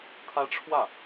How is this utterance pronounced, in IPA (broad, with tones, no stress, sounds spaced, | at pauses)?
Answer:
t̪ʰ ä˥ ʈ͡ʂʰ w ä˥˩